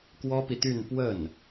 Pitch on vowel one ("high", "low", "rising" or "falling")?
high